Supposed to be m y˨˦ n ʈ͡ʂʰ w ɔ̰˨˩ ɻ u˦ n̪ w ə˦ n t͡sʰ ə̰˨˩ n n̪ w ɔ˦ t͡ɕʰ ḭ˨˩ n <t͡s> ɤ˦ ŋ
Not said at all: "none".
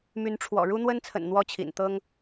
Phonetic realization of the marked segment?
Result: t̪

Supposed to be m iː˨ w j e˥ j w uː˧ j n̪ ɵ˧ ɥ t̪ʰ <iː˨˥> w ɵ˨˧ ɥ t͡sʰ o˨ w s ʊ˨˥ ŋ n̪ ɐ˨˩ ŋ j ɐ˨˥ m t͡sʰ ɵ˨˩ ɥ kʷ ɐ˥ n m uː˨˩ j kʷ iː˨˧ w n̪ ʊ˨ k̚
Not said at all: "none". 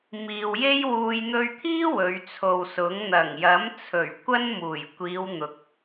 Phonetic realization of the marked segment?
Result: iː˥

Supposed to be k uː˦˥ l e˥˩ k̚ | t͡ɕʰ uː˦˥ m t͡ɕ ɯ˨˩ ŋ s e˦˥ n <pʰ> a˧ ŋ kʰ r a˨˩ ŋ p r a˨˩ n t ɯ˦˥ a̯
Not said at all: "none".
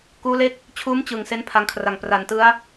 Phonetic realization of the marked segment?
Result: pʰ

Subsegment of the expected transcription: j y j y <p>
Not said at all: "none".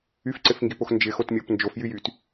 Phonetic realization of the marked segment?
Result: t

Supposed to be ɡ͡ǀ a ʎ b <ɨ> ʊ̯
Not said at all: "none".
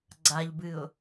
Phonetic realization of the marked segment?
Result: ɨ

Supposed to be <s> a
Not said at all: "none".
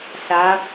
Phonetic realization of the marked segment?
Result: s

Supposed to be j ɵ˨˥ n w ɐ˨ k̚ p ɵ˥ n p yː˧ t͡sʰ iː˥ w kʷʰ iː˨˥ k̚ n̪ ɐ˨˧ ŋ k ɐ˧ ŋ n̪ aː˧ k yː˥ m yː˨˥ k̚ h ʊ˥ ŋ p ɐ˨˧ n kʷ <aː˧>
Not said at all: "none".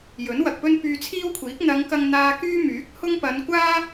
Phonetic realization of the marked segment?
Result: aː˥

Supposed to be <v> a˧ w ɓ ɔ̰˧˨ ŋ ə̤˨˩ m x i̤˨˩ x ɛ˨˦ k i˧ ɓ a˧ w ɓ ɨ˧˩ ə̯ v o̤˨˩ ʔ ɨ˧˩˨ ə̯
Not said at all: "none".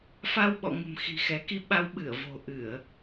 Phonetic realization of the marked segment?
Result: f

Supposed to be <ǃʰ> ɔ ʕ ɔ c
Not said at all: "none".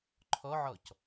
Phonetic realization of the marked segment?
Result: ǃʰ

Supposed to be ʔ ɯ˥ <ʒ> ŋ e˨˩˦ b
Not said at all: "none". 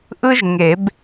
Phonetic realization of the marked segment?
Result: ʒ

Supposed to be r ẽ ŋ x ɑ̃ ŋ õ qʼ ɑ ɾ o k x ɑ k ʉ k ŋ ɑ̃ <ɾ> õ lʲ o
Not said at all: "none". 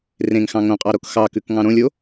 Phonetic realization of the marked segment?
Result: ɾ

